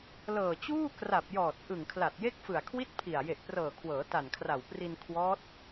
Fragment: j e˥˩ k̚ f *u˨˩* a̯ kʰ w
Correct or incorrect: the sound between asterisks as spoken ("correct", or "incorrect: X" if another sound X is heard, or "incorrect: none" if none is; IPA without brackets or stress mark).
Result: incorrect: ɯ˨˩